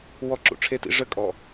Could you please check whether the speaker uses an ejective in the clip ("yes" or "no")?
yes